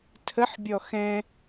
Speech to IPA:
tʰ ə ħ bʲ ɔ x ɛ̃

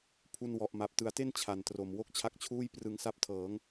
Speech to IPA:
pʰ u˧ n w ɔ˨˩ ʔ m a˨˩ p̚ t ɯ˩˦ a̯ t e˥˩ n t͡ɕʰ a˨˩ n t r o˨˩ m w o˥˩ k̚ t͡ɕʰ a˦˥ k̚ t͡ɕʰ uː˥˩ j p r ɯ˧ ŋ s a˥˩ p̚ tʰ ɤː˩˦ ŋ

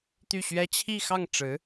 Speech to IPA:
t̪ y˥˩ ɕ ɥ ɛ˥ t͡ɕʰ i˥˧ x ɑ˥˩ ŋ ʈ͡ʂ ɻ̩˧˥

